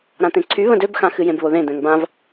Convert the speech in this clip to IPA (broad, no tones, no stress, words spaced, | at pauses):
ɾãt̪ẽǀʰy βə̃døbxã xɨjẽbβoðẽ d̪ɛ̃ŋbãv